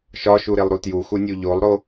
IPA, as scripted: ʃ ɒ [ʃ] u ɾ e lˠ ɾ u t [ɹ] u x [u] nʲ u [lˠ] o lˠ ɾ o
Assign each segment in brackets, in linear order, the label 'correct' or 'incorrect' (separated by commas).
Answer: correct, incorrect, correct, incorrect